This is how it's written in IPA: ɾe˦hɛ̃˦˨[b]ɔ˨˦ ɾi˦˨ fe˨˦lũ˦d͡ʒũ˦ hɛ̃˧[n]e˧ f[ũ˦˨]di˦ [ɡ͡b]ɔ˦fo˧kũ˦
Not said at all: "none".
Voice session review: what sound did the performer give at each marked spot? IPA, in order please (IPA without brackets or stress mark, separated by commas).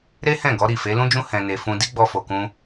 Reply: ɡ, n, ũ˧, ɡ͡b